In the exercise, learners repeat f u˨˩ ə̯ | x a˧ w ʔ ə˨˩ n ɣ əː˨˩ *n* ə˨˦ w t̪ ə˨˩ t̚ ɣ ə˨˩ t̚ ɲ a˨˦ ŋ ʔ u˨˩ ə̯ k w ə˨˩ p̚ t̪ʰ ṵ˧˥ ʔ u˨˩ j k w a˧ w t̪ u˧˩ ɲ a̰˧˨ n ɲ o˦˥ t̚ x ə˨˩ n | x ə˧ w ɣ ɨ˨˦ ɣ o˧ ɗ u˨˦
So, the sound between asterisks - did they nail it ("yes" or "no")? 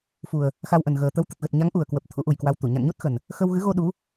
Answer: no